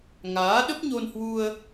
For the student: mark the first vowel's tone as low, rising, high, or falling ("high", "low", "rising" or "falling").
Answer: rising